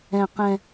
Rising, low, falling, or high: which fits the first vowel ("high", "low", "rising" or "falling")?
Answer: low